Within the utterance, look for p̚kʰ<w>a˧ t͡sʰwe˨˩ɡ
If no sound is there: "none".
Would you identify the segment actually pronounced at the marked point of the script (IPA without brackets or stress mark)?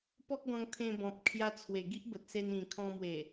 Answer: j